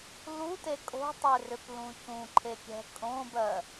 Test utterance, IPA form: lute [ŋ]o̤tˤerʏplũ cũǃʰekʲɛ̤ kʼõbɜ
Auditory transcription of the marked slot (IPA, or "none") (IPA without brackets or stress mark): kʼ